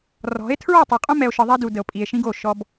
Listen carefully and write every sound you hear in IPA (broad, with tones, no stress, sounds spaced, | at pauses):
r ɔ̤˨˦ e̯ tʰ ɹ ɔ˦˨ tˤ ɯ˨ qʼ õ˦ m ɛ˨ o̯ ʃ ɯ˨ ðˤ ɛ˦ d u˨ d ə˨ o̯ pʼ i˨ e̯ ʃ ĩ˦ ɡ o˦˨ ʃ ɔ˦ b